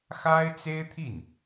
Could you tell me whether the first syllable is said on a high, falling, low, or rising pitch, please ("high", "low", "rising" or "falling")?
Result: high